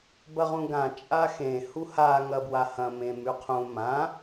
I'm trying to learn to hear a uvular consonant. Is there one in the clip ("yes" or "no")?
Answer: yes